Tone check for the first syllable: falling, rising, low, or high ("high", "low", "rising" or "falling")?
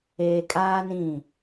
low